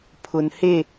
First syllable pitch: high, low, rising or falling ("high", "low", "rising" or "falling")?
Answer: low